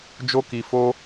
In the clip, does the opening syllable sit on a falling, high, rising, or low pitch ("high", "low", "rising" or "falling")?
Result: high